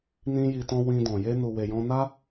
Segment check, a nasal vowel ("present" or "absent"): present